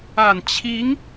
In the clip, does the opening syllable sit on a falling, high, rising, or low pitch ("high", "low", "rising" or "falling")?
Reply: low